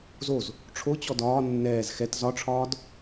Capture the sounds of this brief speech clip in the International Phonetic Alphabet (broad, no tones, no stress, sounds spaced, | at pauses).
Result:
z o z | ʈ͡ʂʰ o t͡ɕ ɔ d ɒː nː ɛː z x ɛ t z ɒ ʈ͡ʂʰ ɒː d